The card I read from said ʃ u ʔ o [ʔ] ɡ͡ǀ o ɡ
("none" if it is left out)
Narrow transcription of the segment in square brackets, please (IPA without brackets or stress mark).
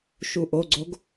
none